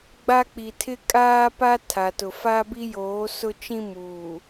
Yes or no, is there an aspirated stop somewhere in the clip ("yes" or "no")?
yes